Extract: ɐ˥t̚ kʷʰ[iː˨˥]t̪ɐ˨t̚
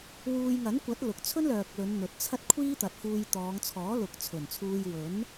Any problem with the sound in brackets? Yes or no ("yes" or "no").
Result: yes